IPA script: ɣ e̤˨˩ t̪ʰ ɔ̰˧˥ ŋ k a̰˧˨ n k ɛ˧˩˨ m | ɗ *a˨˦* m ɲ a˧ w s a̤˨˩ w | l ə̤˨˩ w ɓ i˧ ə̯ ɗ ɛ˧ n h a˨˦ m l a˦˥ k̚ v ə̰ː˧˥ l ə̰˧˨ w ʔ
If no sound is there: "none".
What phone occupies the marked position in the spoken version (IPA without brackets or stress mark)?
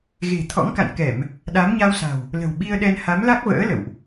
a˨˦